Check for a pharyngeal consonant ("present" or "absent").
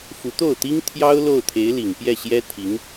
absent